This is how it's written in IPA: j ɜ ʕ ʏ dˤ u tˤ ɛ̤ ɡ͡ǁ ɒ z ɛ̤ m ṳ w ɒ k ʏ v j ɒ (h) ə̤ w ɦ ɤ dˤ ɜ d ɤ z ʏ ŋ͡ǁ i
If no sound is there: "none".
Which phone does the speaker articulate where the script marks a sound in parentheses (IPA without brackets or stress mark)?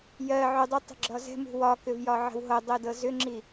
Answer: ʕ